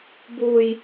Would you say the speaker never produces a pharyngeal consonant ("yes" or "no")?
yes